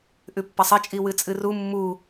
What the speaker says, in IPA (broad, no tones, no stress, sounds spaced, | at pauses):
ʔ ʉ pː ɐ sˤ ɐ t͡ʃʼ i w ɨ t͡sʼ ɨ r u mː u